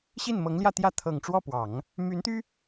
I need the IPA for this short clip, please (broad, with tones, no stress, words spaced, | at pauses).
ɕi˥˩nmɤ˧˥ŋljä˥˧t̪jä˥˩ t̪ʰɤ˨˩ŋʈ͡ʂwɔ˥˩pwɑ˨˩˦ŋ | my˧˥nt̪y˥